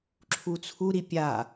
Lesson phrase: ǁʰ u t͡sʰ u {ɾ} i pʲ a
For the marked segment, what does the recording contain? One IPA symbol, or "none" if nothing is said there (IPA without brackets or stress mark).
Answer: ɾ